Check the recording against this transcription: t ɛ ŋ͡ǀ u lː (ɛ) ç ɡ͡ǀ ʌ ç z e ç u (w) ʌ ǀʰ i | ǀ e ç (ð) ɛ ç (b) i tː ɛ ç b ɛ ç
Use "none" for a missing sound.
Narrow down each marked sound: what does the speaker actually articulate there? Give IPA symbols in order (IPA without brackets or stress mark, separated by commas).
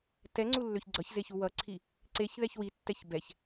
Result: ø, w, ð, w